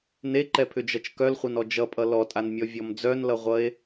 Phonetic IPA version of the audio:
n e ǃ ɛ pʰ ʏ d͡ʒ ʌ t͡ʃ k œ l χʷ ʌ n ɔ d͡ʒ ʌ pʼ ʌ l ɔ tʼ a n mʲ ɔ vʲ ɔ m d͡z œ n l ʌ ʁʷ ʌ e̯

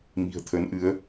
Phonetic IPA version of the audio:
m i̤˨˩ ə̯ t̪ʰ ə˨˦ n ʔ ɨ˨˦ ə̯

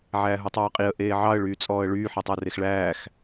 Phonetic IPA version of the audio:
ʕ æː ɦ u tˤ ɑː qʼ i ə̯ ʔ eː ʕ ɑ ə̯ ɭ yː t͡sʼ ɔː ə̯ ɭ yː ħ i tˤ æ r e x ɭ æː x

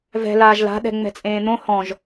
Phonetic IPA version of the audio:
v ɛ̤ l aː ʒ l a̤ ɗ ɛ̤ ŋ͡m ɛ̤ t͡sʼ ẽː n̪ õ h ɔ̃ ʒ

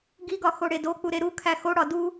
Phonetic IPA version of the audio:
ɡ i ɡ ɒ x o ɽ e d o k͡p u ɾ e ɾ u kʰ æ x o ɽ ɒ d u

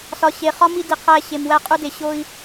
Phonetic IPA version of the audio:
s ɒ˨ ɕ e˨ χ ɒ˦ m i˦ d i˨ qʰ æ˦˨ ɕ e˨ m w æ˦ qʼ u˦ d e˨ ɕ o˦ i̯

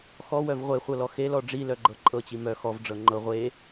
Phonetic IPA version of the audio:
x ɔ w œ v ʁʷ e χʷ ɤ l ɔ x e l ɔ ɖ͡ʐ i l œ ɡ͡ǃ ɤ ǃʼ ɤ t͡ɕ i m œ x ɔ v ɖ͡ʐ ɤ ŋ͡ǃ ɤ ʁʷ e

